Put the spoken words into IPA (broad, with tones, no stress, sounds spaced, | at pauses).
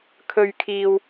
kʰ ɵ˨ ɥ kʰ iː˨ w